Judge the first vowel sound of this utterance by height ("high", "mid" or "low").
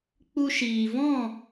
high